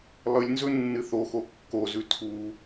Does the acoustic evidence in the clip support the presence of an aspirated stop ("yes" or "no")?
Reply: yes